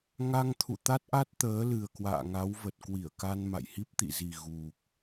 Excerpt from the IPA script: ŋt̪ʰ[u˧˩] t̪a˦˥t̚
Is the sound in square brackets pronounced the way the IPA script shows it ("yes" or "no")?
no